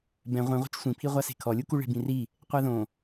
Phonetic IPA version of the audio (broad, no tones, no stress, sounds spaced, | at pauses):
b ɛ̃ ʁʷ ĩ ʁʷ e̤ t͡ʃ sʷ ĩ pʰ i ʁʷ a s e̤ kʰ ɔ lʲ u k u ɭ e̤ b ĩ r i | qʷ a ð õ